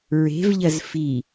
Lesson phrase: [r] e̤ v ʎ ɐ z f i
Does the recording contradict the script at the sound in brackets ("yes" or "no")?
yes